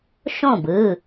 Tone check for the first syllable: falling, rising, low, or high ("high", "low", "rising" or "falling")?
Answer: falling